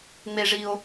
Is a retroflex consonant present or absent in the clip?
present